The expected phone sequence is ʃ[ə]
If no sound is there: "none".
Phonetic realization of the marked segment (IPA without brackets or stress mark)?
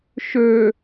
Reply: ø